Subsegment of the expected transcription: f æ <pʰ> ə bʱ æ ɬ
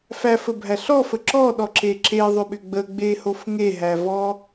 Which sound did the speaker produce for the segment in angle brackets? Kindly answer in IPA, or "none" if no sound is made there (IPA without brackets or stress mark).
f